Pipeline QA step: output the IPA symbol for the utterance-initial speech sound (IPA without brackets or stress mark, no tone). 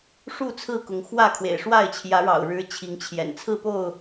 ʂ